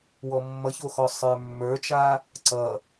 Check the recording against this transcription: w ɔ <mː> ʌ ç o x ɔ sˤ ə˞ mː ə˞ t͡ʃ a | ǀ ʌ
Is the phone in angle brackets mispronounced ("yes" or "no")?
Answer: no